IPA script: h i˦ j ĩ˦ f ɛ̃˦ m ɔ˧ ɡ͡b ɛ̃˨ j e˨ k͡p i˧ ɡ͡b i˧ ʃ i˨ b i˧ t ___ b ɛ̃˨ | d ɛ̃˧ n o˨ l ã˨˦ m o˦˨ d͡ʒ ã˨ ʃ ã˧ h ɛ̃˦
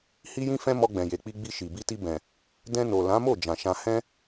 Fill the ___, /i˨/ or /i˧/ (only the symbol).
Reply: i˧